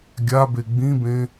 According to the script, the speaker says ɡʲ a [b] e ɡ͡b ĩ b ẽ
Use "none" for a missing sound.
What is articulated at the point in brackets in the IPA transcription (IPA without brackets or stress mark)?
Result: b